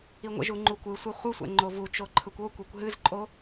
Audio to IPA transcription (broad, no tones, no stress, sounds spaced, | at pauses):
i ŋʷ ə̰ ʒ u ŋ͡ǃ u kʷ ɯ sʷ i χʷ ɯ sʷ ɛ̰ ŋ͡ǃ o v u t͡ʃ o ǃʰ ɯ kʷ o kʷ e kʷ ɦ ɨ z ǃʼ o